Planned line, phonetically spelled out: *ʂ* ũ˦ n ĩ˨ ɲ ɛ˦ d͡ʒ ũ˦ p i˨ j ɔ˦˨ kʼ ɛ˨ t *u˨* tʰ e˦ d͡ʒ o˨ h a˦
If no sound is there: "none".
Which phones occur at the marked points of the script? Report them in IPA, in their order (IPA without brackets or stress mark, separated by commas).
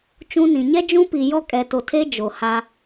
t͡ʃ, o˨